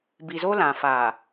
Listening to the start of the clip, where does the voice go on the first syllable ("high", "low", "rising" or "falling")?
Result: low